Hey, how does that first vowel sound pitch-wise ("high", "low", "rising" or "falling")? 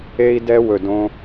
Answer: high